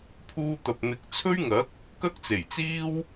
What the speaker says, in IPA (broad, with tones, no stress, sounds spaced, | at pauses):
pʰ uː˧ t̪ ɐ˨ p̚ n̪ ɪ˨˥ k̚ t͡sʰ ɵ˥ ɥ ŋ ɐ˨˥ k̚ | k ɐ˥ k̚ t͡s e˨˩ j t͡s iː˥ w